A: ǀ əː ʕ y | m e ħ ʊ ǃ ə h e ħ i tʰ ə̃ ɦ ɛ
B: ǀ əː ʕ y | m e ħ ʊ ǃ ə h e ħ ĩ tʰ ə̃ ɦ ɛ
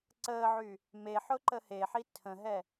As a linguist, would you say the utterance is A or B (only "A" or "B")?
A